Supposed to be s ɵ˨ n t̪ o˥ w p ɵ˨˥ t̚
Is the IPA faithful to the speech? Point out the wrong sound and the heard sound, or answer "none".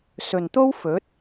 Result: p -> f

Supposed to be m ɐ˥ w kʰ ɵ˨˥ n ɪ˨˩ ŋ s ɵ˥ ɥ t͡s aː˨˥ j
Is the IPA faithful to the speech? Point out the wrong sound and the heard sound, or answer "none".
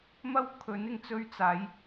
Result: s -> t͡s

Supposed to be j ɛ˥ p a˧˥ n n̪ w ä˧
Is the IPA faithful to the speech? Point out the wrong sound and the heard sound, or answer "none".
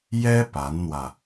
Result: none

